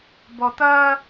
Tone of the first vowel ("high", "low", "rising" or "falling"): low